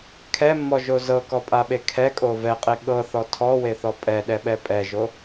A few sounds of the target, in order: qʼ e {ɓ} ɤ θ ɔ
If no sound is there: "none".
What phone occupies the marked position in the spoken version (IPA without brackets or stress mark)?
ɠ